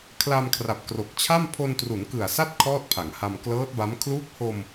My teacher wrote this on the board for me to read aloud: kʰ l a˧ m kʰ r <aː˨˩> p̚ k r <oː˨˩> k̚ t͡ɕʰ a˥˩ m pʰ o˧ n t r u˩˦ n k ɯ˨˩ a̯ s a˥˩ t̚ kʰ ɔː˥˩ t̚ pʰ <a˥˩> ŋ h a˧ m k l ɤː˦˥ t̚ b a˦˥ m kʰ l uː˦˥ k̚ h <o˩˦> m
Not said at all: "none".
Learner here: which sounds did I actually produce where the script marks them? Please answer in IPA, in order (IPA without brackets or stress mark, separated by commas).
a˨˩, o˨˩, a˩˦, o˧